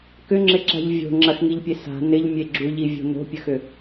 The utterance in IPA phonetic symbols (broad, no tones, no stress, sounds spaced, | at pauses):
k ʏ ŋ͡ǁ ɪ ǁ a̤ ʎ vʲ o̤ ŋ͡ǁ ɐ x ŋ i ʎ pʲ e s a̤ n ɪ ʎ mʲ e ɡ͡ǁ u ʎ i vʲ o̤ n o̤ pʲ ə x ʏ